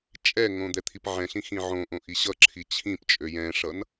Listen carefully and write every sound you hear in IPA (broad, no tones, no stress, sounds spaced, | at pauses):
t͡ʃʼ ɛ ŋ õ d̪ ɛ t̪ʰ i p ʕ ɛ̃ ɬ ĩ x ĩ ʕ õ ʔ õ ʔ i ɕ ʌ ǁʰ i t͡ɕʰ ĩ p t͡ʃʼ ø j ɛ̃ ʂ ʌ n